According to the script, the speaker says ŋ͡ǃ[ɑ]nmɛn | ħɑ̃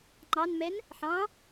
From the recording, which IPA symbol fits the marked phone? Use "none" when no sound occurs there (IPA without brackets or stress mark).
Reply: ɑ